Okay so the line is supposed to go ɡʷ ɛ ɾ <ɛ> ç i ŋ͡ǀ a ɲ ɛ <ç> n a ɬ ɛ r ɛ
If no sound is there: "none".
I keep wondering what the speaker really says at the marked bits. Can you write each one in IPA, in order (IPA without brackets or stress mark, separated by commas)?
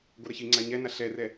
ɛ, none